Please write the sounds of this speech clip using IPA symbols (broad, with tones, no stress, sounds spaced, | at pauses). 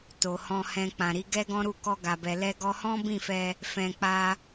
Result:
t o˨ h ɔ̃˧ h ɛ̃˧ k͡p ã˨ ɾ i˨˦ ɡ ɛ˦ ɡ ɔ̃˦ ɾ u˦˨ k ɔ˧ ɡ a˨ b ɛ˨ l ɛ˧ ɡ ɔ˧ h ɔ̃˦ b ĩ˦˨ f ɛ˧ | f ɛ̃˧ k͡p a˦